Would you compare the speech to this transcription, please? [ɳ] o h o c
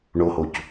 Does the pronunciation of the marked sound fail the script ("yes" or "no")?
no